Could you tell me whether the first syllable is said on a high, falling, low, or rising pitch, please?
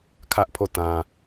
high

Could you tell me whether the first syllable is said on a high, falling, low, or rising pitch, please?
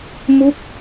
falling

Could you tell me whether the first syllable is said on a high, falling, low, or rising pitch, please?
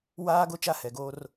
high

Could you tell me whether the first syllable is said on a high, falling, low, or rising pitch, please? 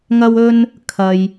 high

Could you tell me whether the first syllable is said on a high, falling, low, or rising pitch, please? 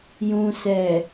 low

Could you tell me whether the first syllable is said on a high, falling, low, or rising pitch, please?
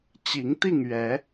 rising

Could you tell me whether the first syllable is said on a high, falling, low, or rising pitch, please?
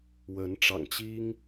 rising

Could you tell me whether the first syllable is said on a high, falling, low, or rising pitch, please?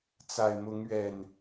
low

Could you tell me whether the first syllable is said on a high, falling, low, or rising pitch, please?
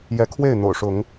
rising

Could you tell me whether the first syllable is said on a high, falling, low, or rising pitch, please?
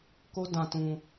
high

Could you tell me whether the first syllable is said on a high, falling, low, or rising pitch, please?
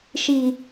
low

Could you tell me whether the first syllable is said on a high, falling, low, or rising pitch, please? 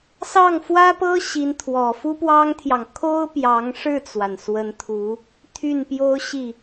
falling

